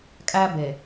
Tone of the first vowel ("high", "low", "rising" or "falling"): high